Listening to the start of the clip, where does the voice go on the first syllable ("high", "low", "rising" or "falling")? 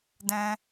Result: high